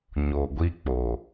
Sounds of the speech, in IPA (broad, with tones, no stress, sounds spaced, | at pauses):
ɲ o˨ ɡʷ i˦ k͡p o˨